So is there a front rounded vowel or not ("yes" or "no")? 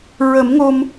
no